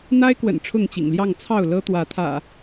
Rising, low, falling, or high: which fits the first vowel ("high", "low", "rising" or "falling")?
high